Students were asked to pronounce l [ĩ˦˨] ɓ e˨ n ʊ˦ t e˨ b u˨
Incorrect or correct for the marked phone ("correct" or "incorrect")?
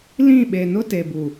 correct